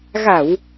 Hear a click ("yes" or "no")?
no